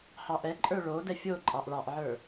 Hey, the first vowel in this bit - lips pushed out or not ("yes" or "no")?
no